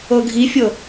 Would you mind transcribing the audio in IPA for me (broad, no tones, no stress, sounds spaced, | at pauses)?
ɤ ɡʱ i fʲ ɤ